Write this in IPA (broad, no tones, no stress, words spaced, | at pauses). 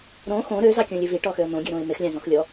ɾõ xõ ɾøzɑkʲõlʲɨ viʈɔxøə̯ n̪õɡʲɨɾõɪ̯ mexlʲɑ̃zɔ̃x lʲɔ